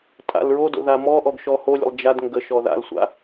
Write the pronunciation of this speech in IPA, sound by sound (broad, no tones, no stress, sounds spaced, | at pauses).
tʼ a̰ l ɹ o d o̰ ð a m ɔ ʔ ɔ ɡ ʃ ɔ h o lʲ ə̰ lˠ d͡ʒ a d ŋ ɡ ə ʃ ɔ ð a̰ l sʷ a̰